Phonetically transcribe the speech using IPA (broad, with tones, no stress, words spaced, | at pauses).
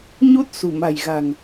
ɲu˦˥t̚ sṳ˨˩ma̤˨˩jɣa̤˨˩ŋ